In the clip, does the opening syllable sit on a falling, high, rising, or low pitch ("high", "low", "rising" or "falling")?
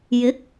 rising